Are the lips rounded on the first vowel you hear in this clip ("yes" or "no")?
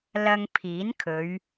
no